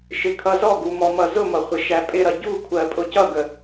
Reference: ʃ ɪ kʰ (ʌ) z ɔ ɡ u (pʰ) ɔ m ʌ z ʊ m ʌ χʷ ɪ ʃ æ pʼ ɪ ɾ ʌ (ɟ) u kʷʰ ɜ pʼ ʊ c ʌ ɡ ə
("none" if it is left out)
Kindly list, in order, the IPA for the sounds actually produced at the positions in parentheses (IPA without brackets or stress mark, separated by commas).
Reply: ʌ, m, ɟ